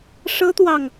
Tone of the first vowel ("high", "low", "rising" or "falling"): high